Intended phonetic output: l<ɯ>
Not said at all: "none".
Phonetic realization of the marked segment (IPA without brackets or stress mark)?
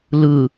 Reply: ɯ